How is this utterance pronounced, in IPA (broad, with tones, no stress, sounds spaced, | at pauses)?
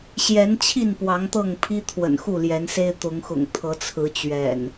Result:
ɕ j ɛ˨˦ n t͡ɕʰ i˥˨ n p w ɑ˨˦ ŋ t̪ ɤ˥˨ ŋ pʰ i˦ t̪ʰ w ə̰˨˩ n x u˥˨ l j ɛ˨˦ n s e˦ ɪ̯ t̪ ʊ˨˦ ŋ x ʊ̰˨˩ ŋ t̪ʰ ɤ˨˦ t͡sʰ ɹ̩˨˦ t͡ɕ ɥ ɛ̰˨˩ n